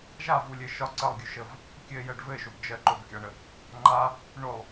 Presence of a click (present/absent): present